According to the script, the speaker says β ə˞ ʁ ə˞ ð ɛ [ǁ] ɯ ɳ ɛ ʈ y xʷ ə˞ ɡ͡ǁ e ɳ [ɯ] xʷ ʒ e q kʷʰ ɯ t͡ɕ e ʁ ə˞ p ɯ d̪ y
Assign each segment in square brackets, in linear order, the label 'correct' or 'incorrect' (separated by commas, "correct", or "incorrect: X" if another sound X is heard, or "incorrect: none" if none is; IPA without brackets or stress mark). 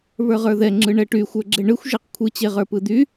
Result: incorrect: ŋ͡ǁ, correct